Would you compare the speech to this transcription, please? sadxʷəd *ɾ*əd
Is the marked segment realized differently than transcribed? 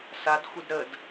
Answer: no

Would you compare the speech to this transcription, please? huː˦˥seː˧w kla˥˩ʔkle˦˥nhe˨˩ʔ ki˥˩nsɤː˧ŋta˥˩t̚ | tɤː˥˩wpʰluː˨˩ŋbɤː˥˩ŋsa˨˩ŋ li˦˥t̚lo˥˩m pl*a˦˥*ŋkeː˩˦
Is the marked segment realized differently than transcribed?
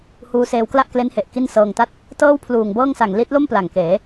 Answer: yes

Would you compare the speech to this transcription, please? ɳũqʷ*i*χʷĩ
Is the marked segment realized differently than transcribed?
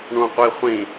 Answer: no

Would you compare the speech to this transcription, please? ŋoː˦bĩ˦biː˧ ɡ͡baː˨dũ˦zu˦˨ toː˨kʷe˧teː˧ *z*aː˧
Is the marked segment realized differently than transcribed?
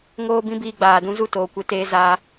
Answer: no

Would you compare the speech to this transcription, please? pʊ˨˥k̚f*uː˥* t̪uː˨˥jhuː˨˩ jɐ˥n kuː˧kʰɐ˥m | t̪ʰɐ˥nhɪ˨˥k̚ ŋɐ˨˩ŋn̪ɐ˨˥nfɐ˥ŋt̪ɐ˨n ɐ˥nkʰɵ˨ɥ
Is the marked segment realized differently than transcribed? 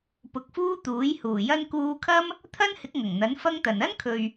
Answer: no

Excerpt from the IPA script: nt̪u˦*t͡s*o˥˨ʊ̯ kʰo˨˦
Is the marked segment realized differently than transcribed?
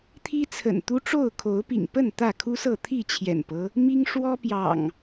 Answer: yes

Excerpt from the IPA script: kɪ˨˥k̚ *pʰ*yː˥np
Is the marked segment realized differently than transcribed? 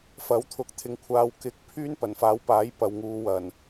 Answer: no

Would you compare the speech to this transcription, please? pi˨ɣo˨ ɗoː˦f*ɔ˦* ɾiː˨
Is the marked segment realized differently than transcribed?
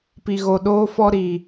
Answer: no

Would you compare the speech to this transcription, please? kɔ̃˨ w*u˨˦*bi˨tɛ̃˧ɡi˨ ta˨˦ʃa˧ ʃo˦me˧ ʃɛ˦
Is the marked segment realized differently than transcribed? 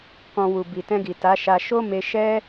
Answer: yes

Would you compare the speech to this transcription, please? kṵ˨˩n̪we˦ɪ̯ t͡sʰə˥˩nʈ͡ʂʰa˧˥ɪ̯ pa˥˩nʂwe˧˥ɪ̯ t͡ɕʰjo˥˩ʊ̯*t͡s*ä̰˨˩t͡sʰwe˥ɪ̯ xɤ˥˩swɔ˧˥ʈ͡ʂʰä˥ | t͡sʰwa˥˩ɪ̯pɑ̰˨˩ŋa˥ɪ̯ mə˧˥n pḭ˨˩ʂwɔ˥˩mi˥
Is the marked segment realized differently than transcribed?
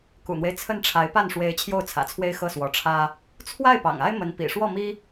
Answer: yes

